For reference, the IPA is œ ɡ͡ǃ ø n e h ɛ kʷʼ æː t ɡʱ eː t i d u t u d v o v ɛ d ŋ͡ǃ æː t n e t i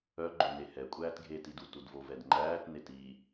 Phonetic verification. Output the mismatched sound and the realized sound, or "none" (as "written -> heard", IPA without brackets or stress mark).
none